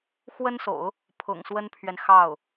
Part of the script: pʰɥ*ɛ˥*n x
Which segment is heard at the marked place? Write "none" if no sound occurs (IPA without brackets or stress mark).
ɛ˨